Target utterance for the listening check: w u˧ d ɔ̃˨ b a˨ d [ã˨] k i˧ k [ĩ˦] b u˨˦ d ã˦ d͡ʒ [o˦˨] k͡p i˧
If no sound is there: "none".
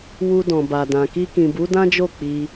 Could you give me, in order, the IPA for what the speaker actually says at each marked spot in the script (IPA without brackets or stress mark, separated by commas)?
ã˨, ĩ˨, o˦˨